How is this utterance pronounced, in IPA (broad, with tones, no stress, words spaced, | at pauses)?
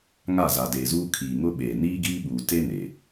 ŋa˦˨za˨deː˨zuː˦ kʰiː˨ŋʊ˦ɓeː˨ niː˦ɡiː˦ɓuː˨te˦ ne˨